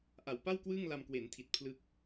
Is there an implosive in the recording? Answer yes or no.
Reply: no